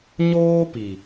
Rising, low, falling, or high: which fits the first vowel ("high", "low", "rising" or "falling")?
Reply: high